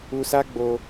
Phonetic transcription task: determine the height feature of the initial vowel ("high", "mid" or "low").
high